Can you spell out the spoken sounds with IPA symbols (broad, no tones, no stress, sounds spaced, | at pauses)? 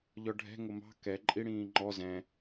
ʎ ɔ ɖʱ ɛ̤ ŋ ʊ m ɑ̤ k ɛ ǃʼ i ɽ ĩː ŋ͡ǃ ɔ z ɛ̃